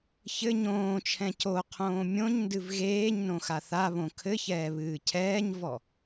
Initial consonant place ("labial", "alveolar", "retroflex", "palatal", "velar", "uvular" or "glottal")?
palatal